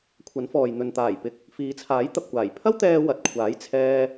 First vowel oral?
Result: yes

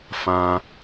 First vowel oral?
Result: no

